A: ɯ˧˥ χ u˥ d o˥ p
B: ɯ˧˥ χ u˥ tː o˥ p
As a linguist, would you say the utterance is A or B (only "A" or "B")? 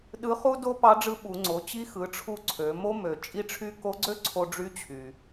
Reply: A